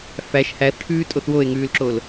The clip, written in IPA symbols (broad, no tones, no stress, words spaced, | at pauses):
fæʃ hæθʈʰʉːtʼoθ woe̯ŋʉːlǁol